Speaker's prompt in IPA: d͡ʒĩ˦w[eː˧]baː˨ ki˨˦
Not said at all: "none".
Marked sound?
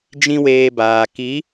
eː˧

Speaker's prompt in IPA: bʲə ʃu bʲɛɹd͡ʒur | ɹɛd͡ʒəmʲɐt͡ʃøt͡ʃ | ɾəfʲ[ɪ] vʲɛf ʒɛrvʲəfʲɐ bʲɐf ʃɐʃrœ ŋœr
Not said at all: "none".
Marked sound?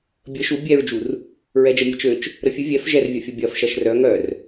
ɨ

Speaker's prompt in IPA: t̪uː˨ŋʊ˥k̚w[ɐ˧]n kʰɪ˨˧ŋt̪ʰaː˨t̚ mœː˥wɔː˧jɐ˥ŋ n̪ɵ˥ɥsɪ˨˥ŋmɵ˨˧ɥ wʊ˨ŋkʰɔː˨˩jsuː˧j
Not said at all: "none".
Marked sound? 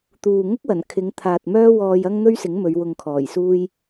ɐ˨˩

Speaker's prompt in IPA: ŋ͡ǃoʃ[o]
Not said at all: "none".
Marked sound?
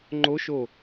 o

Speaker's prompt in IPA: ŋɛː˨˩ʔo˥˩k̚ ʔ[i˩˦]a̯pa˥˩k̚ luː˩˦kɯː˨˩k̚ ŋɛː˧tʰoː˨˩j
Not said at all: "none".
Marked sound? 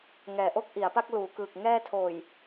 i˩˦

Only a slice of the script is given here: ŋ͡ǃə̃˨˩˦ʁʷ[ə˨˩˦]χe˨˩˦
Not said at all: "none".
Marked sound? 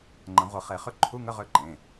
ə˨˩˦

